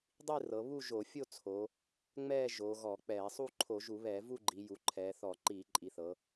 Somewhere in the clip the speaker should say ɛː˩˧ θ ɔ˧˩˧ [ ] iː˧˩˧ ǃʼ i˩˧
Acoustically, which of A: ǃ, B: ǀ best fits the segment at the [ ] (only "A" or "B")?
A